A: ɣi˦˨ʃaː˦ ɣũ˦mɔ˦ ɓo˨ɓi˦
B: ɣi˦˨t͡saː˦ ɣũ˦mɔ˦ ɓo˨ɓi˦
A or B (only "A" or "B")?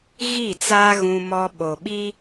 B